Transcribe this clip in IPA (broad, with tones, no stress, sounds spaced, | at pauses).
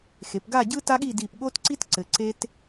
x e˩˧ p ɡ a˥˧ ɟ ɯ˥ t a˥ ɠ i˥˧ d i˧˩ p ɠ o˥ t ǀ i˥ t ǀ ɘ˩˧ ǀ e˥ t